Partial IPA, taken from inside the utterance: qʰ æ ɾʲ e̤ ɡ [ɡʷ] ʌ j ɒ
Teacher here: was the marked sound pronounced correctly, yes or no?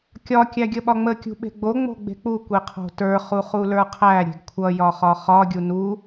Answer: no